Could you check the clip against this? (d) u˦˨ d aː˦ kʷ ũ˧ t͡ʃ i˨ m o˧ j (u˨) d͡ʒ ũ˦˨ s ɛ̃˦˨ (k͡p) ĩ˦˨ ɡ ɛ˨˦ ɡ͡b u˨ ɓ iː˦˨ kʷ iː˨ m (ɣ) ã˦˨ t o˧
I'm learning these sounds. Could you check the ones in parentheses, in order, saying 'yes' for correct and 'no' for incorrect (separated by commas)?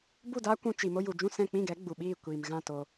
no, yes, yes, yes